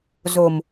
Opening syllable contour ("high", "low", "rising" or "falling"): low